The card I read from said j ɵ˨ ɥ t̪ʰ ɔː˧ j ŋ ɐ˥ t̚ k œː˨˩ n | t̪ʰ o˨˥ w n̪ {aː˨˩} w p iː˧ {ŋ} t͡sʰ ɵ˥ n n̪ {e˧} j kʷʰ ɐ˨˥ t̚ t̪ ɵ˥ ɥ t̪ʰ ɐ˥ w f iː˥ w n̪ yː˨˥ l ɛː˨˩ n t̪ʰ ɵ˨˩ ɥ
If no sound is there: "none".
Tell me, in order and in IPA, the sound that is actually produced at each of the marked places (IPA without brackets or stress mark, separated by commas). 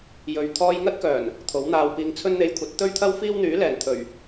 aː˧, ŋ, e˧